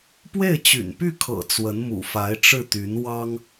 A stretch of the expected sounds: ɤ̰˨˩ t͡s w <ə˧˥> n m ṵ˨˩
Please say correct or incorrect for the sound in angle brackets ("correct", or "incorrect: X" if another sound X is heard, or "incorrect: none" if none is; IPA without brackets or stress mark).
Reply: correct